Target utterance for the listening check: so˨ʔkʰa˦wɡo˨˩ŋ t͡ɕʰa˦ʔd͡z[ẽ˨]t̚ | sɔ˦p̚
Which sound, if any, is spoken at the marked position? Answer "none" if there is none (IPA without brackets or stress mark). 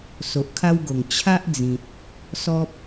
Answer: ĩ˨